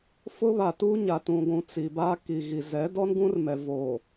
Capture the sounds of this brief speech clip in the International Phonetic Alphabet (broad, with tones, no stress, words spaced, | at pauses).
fʊ˦βa˨tuː˦ ɲa˨tũ˨ɡʷũ˨ t͡si˨ba˦ ki˨ɣi˨ zɛ˨˦ dɔ˦nɡũ˦rmɛ˨voː˨